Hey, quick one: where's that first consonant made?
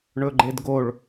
retroflex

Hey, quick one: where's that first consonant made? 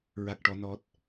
tongue tip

